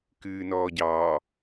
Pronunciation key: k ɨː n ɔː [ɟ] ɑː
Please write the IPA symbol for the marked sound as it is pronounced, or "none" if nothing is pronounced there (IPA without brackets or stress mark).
ɟ